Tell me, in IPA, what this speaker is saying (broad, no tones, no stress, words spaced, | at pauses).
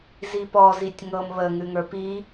zipɔ zitʲŋɤm βə ŋʉŋə˞pi